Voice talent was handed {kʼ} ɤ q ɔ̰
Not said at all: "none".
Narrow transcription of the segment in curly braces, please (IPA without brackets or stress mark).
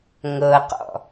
ŋ